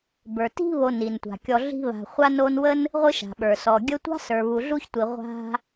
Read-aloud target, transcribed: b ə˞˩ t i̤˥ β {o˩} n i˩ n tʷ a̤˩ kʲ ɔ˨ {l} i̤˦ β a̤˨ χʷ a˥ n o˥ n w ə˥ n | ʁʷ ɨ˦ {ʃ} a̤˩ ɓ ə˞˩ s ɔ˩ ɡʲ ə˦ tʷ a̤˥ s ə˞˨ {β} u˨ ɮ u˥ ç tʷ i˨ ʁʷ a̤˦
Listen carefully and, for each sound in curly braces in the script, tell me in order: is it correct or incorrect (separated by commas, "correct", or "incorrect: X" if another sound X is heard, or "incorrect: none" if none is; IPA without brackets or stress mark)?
incorrect: o˨, incorrect: ɮ, correct, correct